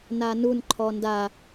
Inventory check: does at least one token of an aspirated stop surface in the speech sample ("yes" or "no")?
yes